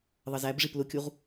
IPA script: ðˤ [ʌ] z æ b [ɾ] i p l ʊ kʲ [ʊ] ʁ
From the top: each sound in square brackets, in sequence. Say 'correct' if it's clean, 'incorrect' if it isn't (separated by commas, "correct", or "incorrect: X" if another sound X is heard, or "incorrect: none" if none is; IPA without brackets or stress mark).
correct, incorrect: ʐ, incorrect: u